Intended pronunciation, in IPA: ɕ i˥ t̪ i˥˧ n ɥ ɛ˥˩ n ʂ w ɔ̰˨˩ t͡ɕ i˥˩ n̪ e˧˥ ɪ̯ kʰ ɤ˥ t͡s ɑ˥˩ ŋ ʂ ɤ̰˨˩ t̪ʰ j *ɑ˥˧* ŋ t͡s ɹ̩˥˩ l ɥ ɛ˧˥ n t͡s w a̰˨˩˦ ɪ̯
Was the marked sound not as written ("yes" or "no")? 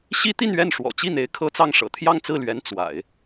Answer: no